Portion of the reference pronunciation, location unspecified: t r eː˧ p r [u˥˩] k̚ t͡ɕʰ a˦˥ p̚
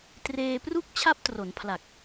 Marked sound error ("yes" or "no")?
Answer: no